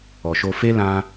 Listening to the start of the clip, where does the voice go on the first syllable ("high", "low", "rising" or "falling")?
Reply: low